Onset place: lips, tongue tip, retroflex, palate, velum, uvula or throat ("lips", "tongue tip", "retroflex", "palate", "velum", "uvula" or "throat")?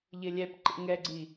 palate